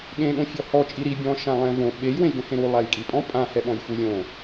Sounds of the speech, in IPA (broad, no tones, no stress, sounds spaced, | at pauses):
ɠ ẽ ɠ õ fʲ ɔ h ɔ t͡ʃʼ i ɾ i bʲ ɔ̃ ʃ ã lˠ ɛ̃ v õ ɓ e j w ẽ j ɡ ɛ̃ h ẽ ɾ u lˠ a j kʼ i pʼ ɔ̃ pʼ ã h ɛ ɓ ɔ̃ j f u lʲ õ